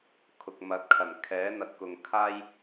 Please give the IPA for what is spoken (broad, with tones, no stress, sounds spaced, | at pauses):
kʰ ʊ˨ k̚ m ɐ˨˥ t̚ kʰ ɐ˨˩ n kʰ ɛː˨˥ n̪ ɐ˨ t̚ k ʊ˨ ŋ kʰ aː˥ j